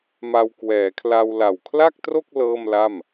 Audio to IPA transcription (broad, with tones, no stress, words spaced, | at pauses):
ma˧wkwɛː˩˦kʰla˧w la˨˩wkʰla˥˩k̚tro˥˩k̚ lɤː˥˩mla˥˩m